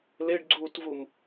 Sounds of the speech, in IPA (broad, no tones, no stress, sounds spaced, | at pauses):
l e ɖ ɡ͡ǀ uː t v u m